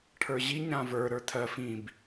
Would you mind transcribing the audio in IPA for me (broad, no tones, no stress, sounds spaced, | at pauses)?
ʈʰ ə˞ ʑ i ɲ ɾ ã v ə˞ ɾ ə˞ tʰ ɜ f ĩ b